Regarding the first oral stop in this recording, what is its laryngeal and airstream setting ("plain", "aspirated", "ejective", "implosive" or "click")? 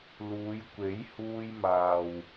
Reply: plain